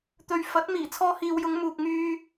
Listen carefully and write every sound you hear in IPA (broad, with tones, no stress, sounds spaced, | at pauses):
t̪ ɵ˨ ɥ f ɐ˨˥ t̚ m iː˨˩ t͡sʰ ɔː˧ h iː˨ w j ʊ˨˧ ŋ m uː˨ k̚ ŋ yː˧